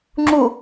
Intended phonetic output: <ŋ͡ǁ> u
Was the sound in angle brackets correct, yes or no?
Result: yes